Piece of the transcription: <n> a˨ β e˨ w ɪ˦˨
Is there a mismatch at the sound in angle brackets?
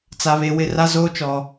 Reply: yes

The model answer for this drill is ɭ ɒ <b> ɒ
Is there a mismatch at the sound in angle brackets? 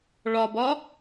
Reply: no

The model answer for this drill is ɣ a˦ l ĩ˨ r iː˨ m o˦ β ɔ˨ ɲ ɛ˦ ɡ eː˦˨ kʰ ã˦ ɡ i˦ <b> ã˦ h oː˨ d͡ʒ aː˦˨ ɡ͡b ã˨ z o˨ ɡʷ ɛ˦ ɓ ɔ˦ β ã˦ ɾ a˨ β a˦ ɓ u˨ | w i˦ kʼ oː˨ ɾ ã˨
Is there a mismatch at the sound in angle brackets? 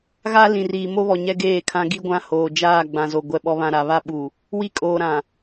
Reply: yes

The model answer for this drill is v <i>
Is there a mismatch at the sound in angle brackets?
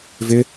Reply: yes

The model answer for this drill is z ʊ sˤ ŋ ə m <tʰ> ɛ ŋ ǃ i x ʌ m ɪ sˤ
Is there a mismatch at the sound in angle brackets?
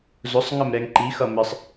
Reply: yes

